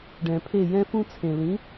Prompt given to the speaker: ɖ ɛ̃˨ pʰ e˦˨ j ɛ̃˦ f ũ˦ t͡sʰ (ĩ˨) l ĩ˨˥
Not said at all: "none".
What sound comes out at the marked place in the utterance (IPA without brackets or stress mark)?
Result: ẽ˨